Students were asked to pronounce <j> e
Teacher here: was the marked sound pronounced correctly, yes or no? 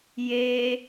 yes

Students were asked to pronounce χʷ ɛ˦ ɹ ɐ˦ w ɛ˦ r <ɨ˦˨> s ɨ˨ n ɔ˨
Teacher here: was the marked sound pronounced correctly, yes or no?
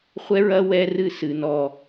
yes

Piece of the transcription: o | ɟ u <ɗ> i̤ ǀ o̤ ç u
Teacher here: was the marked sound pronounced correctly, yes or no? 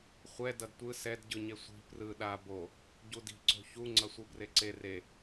no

